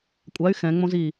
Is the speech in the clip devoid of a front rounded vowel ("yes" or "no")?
no